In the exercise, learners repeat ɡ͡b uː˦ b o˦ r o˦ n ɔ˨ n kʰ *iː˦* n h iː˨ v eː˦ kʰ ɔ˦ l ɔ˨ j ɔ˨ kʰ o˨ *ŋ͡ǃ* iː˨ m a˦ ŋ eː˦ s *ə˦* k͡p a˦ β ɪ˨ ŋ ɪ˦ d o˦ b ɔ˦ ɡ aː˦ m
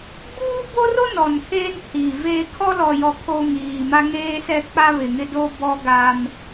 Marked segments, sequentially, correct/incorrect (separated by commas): incorrect, incorrect, incorrect